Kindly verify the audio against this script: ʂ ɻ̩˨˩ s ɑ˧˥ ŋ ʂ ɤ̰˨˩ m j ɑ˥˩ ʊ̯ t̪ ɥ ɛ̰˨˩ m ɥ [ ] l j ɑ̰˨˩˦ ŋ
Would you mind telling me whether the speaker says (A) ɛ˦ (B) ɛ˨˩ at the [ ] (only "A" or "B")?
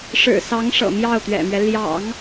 A